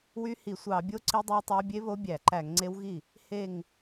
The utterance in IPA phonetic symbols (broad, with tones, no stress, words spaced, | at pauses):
wy˦˥hi˧˩˧ sʷɑ˧˩˧bʲo˦˥ ǀi˦˥dˤø˦˥wtˤæ˦˥ bʲe˦˥βo˦˥ bʲæ˧˩˧ǃæ˧˩˧ŋŋ͡ǀe˦˥w ɣi˥˩ | he˧˩ŋ